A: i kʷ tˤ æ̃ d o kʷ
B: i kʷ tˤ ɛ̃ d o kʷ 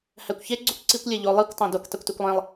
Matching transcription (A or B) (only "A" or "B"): A